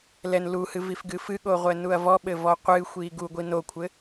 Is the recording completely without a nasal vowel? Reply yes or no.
yes